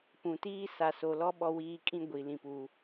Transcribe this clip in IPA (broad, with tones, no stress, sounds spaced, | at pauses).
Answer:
p ũ˨ t iː˦ s a˨ s o˨ l ɔ˦ ɓ ɔ˦ w iː˦ kʼ ĩ˦ ɡʷ i˨ l ĩ˨ p uː˨